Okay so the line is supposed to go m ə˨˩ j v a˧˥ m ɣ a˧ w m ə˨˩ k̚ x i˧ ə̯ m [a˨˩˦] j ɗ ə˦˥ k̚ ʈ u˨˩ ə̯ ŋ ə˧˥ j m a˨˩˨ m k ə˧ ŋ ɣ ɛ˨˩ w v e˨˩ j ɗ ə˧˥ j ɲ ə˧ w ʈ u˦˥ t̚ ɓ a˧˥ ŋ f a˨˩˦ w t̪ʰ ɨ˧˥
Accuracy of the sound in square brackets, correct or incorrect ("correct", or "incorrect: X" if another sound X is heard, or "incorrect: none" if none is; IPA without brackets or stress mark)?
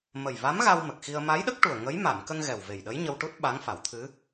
incorrect: a˧˥